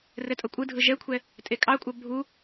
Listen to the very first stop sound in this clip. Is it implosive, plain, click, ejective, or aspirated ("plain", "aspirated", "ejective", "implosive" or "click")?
ejective